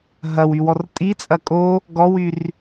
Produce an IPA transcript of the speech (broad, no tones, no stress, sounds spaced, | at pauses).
ɦ ɐ w y w ɔ r tʼ i t͡sʼ ɐ kʼ o | ɡ ɔ w y r